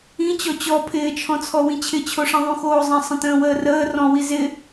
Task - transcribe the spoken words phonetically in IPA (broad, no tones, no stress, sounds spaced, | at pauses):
ĩ t͡ɕ ɔ t͡ɕ ɔ pʰ ɪː t͡ʃʰ ɔ̃ t͡sʰ ɔ w ĩ t͡ɕʰ ɪ t͡ɕʰ o ʂ ĩ ðˤ ũ x oː zˤ ə̃ sˤ ə̃ t ə̃ː w əː r əː r ɔ̃ w i z ɪ